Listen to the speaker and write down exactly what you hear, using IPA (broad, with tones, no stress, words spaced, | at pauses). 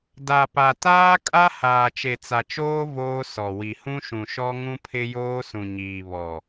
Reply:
da˨pa˨ taː˦kʼa˦ haː˨t͡ʃe˨t͡sa˨t͡ʃoː˦ voː˦sɔ˨ wi˨ hũ˦ʃũ˨ ʃɔ˦ŋũ˦pʰɪ˦ joː˦sũ˨ɲiː˨ βɔ˨